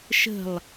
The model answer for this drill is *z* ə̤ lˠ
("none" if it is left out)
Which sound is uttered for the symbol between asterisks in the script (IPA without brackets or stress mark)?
ʃ